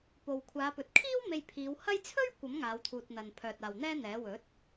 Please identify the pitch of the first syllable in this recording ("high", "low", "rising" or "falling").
low